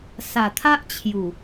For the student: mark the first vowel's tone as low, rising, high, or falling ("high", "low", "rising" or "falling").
low